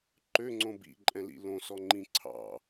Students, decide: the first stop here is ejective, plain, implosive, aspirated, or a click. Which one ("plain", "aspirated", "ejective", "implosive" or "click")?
click